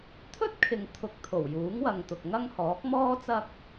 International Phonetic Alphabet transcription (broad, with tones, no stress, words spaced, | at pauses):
t̪ʰɵ˥t̚kʰɪ˨ŋ t̪ʰʊ˧k̚ t̪ʰo˨˩wjuː˨˥ŋwɐ˨ŋ t̪ʊ˨k̚ŋɐ˥ŋhɔː˨˥k̚ mɔː˥ t͡sɐ˥k̚